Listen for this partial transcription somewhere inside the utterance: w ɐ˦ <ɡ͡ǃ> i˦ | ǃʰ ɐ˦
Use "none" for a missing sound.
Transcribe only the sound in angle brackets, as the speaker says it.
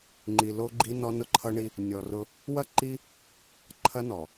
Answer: ǃ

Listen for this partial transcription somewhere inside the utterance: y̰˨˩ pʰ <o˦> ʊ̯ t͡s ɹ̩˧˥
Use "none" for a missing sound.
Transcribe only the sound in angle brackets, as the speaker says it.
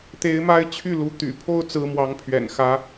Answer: o˥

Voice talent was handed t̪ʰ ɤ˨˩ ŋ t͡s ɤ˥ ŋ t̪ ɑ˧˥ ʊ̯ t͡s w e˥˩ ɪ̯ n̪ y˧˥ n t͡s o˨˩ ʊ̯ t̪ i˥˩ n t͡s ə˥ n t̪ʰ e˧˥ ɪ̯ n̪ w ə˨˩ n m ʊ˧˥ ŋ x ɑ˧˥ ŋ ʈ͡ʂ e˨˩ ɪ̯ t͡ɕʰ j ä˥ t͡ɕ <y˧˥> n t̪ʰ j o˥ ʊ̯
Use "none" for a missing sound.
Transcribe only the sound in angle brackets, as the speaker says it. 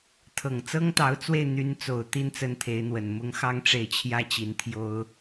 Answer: i˧˥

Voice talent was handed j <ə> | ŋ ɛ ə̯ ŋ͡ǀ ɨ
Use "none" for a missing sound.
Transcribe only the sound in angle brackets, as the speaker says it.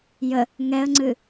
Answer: ə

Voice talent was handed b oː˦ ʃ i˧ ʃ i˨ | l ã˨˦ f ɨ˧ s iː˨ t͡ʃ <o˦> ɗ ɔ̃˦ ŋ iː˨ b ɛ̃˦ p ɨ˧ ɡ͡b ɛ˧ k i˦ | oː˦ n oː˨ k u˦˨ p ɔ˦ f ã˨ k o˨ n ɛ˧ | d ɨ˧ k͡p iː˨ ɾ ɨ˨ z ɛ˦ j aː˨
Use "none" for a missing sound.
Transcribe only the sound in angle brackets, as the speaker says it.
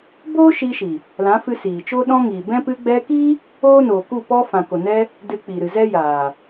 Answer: o˦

